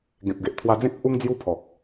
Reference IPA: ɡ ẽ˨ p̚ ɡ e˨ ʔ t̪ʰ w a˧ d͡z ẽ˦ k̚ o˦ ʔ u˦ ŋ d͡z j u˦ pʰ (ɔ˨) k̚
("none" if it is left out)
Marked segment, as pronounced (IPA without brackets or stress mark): ɔ˨